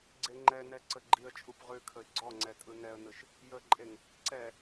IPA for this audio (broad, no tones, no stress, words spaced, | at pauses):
ɡ͡ǀeŋ͡ǃɛnɛ ǀəɡ͡ǃiə̯t͡ʃʼup ʁʉkʰəɪ̯ ɡ͡ǀɔŋ͡ǀɛ tʼɯnɛə̯nɯʃ | jəǃʼeŋ | ǀɛ